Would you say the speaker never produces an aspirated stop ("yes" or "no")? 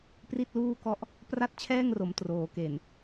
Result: no